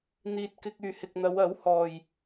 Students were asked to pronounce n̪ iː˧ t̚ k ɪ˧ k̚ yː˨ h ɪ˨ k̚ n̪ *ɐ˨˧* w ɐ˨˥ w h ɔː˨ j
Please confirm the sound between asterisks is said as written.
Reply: yes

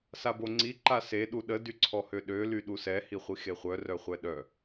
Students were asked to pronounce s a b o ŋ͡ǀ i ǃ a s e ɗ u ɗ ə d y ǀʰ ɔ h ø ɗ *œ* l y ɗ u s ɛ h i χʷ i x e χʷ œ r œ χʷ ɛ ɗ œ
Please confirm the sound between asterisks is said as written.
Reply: no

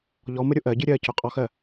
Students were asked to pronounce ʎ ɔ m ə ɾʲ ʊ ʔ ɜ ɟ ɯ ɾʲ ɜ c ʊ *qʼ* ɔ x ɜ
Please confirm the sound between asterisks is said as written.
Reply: yes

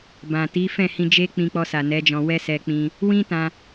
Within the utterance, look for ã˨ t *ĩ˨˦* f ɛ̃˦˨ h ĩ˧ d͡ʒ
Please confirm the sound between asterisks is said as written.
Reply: no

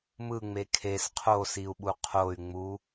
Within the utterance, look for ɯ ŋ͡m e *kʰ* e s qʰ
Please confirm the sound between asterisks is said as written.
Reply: yes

